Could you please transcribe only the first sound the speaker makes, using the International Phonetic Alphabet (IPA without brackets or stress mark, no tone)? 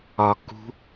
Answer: ɒ